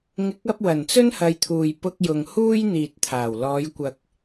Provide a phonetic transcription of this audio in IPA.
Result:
ŋ ɪ˨˥ k̚ ɐ˧ p̚ w ɐ˨˩ n t͡s ɵ˥ n h ɐ˨˧ j t̪ʰ uː˨ j p ʊ˧ k̚ j ʊ˨ ŋ h uː˥ j n̪ iː˨ t̚ t̪ʰ aː˨˩ w l ɔː˨˧ j kʷ ɐ˧ k̚

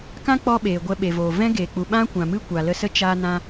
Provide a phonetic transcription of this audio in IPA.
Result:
k ã˦ k͡p ɔ˧ ɓ eː˨ ɡʷ ɛ˧ ɓ e˨ v oː˨ v ɛ̃˦ ɡ e˨ k͡p u˨ ɓ ã˦ kʷ ã˨ m ɨ˦ kʷ a˨ l ə˧ s ə˦ t͡ʃ a˧ n ã˧

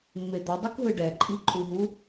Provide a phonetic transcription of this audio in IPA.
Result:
mː e d̪ ʌ dˤ i k ɦ ɯ ɖ ɛ ǃʼ i ǃʼ u ɦ u

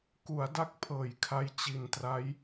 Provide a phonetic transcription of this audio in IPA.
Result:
k u˩˦ a̯ d a˦˥ k̚ pʰ ɤː˨˩ j kʰ a˧ j t͡ɕ i˨˩ n t r a˦˥ j

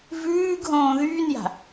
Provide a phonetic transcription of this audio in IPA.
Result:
v ʉː ɡ ɦ õː ð yː n j a̤

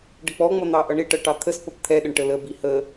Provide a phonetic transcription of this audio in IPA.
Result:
ɖ ə k͡p ɔ ŋ͡m ʌ n̪ ɑ ʔ ʌ ɳ ɪ ʈ ʌ ʈ ɑ t̪ʰ ə s p ʌ p t̪ʰ ɛ ɗ ə ɳ ʈ ə l ə b i h ə

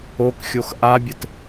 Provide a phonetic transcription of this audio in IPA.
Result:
o k xʲ o x ʔ a bʲ ɘ t

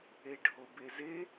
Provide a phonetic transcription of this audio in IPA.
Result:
e ɖʱ o b e z e

